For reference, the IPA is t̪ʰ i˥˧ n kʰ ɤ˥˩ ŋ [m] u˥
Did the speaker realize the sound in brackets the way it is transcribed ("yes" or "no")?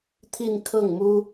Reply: yes